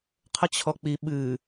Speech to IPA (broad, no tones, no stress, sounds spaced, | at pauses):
qʰ ə t͡ɕʰ ɔ k͡p i ɓ ɨ